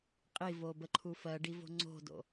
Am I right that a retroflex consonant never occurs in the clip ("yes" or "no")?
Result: no